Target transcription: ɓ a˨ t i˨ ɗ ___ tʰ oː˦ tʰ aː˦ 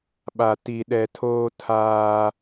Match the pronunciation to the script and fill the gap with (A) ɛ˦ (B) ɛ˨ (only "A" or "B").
B